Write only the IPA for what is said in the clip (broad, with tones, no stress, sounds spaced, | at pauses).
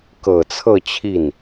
k ɤ˨˩ t͡sʰ ɤ˥˧ t͡ɕʰ i˥˩ n